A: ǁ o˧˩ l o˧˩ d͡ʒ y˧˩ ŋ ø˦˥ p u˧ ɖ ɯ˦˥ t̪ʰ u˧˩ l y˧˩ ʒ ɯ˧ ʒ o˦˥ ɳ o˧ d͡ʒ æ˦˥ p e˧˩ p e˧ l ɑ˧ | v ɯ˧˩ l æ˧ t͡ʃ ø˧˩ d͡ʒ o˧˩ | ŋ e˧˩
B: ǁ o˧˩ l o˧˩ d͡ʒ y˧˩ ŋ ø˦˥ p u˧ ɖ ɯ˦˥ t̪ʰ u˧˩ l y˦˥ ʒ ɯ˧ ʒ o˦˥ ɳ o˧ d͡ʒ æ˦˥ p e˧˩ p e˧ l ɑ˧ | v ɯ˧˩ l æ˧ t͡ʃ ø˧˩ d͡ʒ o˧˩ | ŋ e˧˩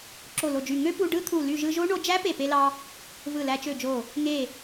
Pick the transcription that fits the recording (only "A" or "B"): A